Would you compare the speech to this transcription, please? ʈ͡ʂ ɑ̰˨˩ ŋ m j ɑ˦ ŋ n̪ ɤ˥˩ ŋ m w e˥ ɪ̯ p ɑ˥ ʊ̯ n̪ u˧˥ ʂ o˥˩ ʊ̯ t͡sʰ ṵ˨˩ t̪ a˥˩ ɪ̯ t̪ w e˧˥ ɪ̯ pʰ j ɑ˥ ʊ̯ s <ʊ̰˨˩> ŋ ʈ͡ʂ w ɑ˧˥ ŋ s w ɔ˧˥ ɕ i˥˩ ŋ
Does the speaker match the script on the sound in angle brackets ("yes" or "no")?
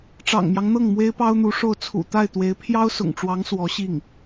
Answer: yes